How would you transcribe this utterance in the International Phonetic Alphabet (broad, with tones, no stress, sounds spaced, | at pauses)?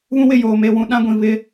β ũ˦ w ɪ˦˨ j oː˨ m e˦˨ w ũ˦ ɗ ã˦ ɡʷ ĩ˨ β ɪ˦